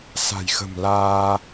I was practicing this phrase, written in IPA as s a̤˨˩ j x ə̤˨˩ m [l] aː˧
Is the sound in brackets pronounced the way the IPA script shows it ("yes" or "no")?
yes